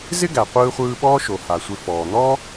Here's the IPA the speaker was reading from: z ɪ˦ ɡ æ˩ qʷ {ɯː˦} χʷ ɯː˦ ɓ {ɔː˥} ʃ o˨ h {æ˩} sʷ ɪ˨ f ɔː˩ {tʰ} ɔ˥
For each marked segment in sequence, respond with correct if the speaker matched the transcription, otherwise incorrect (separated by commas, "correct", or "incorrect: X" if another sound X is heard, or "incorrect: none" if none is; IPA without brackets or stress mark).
correct, correct, incorrect: a˩, incorrect: n̪